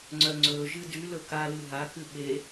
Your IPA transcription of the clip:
ŋ͡ǀ œ ŋ͡ǀ ɵ ʒ ɨ d y l ɵ k a l ɨ ɦ a k ɨ ɓ e

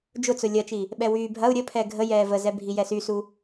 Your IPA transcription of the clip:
d͡ʒ ʊ t͡s ʊ lʲ ɐ t͡ʃ i | ɓ ɛ w yː bʱ ɐ u̯ ɾʲ ə pʰ ɛ ɡʱ ə j ɛː v ə z ɛ bʱ i j ɛ s y s u

